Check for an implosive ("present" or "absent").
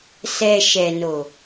absent